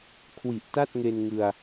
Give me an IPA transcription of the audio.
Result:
kʰ w i˨˩ ʔ t a˥˩ t̚ ŋ e˧ n ŋ ɯ˧ a̯

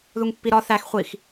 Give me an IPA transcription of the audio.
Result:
ð u ŋ pː i ɾ ɒ θ æ x χʷ i x

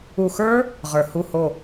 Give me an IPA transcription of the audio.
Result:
u˨˩ x ə˞˦˥ | ʁ ə˞˨˩ h u˦˨ h o˦˨

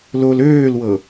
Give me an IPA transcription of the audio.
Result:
l o l øː l w ɤ

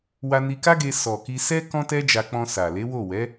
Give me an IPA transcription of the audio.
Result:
w a˧ n i˧ k a˦ ɡ e˧ s ɔ˨ k i˧ s ɛ˦ k ɔ̃˦ t ɛ˦ d͡ʒ a˧ k͡p ɔ̃˧ s a˨ l e˨˦ w o˦˨ w ɛ˨˦

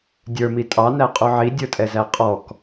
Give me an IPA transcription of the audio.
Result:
dʲ ə˞ m i tʼ ɑ n æ qʼ u ʕ i dʲ ə˞ tʼ ɛ z æ qʼ ɔ k

